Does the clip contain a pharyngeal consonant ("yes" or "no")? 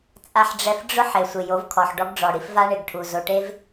yes